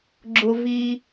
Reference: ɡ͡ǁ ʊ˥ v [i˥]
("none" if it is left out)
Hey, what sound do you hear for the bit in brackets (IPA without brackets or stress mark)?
i˥